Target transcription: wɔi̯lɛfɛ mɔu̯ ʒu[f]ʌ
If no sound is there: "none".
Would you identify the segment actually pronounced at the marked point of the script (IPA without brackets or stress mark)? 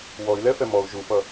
f